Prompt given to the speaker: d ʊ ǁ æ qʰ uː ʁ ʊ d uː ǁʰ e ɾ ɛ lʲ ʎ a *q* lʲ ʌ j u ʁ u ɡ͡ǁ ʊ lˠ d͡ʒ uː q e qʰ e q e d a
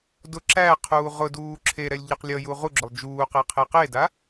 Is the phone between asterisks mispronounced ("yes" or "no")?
no